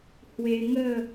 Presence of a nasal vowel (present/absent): absent